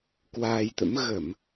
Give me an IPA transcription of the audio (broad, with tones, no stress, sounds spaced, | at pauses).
k w aː˧ j t̪ ə̰˧˥ m ɣ ə˧˩˨ m